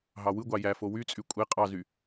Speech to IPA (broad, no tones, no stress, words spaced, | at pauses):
ɦɑwɯɡʷɑ jæfo wyt͡sʼy kʷʼe qʼɑzy